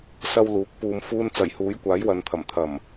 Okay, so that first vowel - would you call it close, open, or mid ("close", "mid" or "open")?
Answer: open